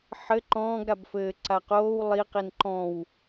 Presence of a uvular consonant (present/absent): present